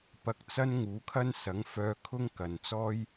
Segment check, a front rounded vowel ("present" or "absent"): present